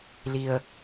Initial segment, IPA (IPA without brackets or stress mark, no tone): l